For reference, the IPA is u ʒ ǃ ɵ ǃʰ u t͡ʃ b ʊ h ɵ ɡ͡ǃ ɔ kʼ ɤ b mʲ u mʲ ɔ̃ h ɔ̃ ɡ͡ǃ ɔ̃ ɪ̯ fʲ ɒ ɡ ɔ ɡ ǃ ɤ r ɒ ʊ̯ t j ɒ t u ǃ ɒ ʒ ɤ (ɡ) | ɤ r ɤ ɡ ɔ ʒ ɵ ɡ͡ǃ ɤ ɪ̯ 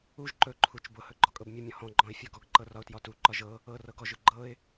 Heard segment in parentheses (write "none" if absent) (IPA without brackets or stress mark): none